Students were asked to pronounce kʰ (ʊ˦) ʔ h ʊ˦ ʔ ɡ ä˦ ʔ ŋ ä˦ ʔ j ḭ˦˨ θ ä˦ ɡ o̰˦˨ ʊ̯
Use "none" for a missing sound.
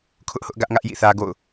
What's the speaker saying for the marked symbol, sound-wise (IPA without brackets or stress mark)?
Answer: ʊ˦